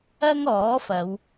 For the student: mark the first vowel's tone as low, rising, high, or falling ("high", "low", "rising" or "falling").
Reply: high